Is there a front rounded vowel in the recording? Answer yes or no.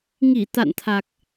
no